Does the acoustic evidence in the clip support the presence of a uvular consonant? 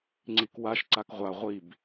yes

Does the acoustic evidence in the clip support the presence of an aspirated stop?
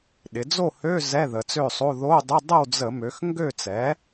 no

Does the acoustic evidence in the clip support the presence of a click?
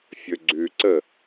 yes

